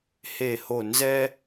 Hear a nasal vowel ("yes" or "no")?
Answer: no